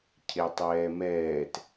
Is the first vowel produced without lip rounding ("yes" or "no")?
yes